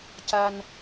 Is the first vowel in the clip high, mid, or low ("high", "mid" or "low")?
low